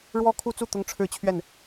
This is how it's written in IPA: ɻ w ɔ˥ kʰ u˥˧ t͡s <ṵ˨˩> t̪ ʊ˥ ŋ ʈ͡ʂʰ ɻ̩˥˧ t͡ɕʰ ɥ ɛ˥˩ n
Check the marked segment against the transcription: incorrect: u˥˩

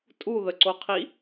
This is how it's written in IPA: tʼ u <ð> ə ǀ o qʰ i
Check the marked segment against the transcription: correct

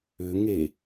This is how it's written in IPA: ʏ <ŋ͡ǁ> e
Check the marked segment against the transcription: incorrect: ŋ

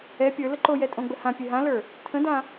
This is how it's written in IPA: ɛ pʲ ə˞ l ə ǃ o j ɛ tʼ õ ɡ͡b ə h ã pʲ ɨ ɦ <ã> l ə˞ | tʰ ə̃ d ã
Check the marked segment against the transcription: correct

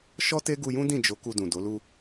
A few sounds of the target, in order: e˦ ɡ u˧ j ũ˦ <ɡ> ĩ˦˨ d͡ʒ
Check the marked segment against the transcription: incorrect: d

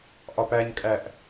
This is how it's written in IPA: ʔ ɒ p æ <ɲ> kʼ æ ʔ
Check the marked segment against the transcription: correct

